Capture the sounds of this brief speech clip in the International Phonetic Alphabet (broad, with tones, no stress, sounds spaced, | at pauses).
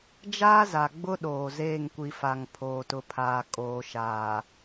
d͡ʒ aː˦ z a˨ ɡ͡b ʊ˦ ɗ oː˨ z eː˦˨ ŋ kʷ i˨ f a˨ ŋ pʰ oː˨ t ʊ˨ pʰ aː˨ kʼ oː˨ ʃ aː˨